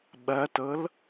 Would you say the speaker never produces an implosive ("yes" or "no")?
no